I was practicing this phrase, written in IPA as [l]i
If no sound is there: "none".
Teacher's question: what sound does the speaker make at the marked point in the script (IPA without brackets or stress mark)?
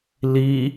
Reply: l